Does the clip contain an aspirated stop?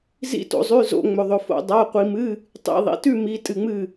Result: no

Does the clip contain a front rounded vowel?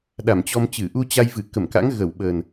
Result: no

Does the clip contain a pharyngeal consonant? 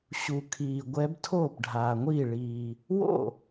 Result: no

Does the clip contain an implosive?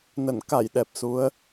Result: yes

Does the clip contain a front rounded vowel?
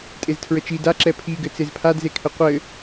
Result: no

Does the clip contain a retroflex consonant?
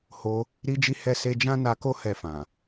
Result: no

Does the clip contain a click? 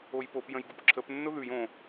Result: yes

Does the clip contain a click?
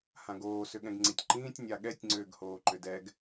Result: yes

